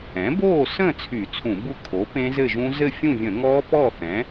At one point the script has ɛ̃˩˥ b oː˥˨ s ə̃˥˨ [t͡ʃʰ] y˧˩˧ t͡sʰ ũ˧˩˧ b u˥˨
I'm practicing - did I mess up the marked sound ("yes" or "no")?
yes